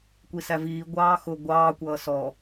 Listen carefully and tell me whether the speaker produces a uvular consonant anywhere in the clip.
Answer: no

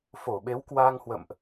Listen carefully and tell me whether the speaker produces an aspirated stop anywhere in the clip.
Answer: no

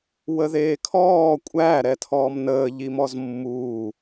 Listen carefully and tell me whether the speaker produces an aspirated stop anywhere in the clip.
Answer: yes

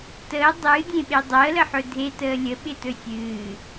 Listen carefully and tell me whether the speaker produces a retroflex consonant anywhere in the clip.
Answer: no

